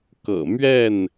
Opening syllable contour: low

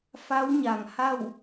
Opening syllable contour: rising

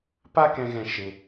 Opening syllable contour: high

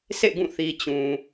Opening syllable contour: falling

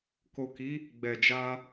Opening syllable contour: low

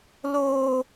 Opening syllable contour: high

